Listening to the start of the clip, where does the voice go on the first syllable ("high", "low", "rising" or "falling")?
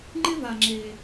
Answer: high